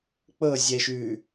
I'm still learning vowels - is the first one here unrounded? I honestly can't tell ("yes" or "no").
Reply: yes